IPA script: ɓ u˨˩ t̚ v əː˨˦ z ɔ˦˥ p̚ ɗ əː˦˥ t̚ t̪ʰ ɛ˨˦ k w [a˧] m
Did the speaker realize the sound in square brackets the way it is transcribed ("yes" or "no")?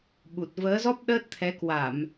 no